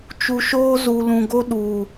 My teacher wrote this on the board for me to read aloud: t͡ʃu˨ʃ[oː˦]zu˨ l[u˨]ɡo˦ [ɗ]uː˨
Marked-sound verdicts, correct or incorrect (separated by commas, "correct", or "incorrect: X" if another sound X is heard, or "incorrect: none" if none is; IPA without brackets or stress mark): correct, incorrect: ũ˨, correct